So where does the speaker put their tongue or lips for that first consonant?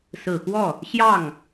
tongue tip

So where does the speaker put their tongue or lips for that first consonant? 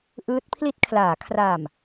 throat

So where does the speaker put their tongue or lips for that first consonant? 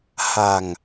throat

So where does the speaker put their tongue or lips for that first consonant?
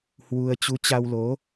throat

